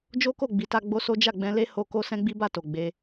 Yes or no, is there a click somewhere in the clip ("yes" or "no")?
no